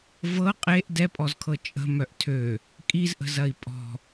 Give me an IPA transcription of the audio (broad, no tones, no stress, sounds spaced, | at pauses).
v ɤ qʼ e ʔ d ɛ pʼ ɔ z kʰ ɤ t͡ʃʼ ə̤ m œ ʔ tʰ ø | kʼ i z ʔ ə̤ z ɐ i̯ pʼ ɔ̤